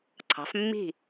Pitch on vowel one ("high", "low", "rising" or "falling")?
rising